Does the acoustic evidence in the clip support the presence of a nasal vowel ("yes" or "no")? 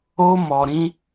yes